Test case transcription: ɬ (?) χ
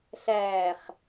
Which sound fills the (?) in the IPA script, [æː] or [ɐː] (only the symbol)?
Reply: æː